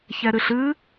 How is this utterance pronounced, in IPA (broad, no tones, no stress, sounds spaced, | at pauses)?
ç ɛ ɾ ɨ ɬ ɨ